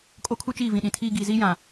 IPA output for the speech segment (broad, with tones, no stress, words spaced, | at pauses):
kʼo˦kʰu˦t͡ʃiː˦˨vĩ˨ ɗĩ˨tʰiː˦ ɡiː˨ziː˦jã˨